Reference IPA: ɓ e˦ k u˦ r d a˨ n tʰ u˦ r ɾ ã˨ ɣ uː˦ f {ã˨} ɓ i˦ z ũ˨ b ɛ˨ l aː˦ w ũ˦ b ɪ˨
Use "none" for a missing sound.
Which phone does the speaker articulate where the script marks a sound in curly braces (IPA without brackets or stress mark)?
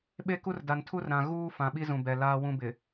ã˨